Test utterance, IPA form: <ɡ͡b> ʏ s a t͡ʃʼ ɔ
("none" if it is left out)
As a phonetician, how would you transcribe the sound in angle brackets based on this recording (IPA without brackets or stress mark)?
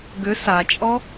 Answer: ɡ